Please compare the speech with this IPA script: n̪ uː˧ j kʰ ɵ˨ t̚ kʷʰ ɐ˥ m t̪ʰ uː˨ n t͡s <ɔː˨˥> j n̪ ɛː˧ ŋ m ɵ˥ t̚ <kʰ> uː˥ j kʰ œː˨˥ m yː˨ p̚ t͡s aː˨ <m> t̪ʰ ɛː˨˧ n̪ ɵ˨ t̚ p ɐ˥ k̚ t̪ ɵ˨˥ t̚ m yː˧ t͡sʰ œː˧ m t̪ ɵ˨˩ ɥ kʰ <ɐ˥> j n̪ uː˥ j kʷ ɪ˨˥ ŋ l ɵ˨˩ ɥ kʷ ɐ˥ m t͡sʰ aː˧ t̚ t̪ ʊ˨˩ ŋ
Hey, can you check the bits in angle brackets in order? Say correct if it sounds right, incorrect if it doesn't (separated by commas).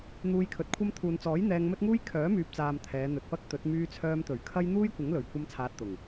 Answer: correct, incorrect, correct, correct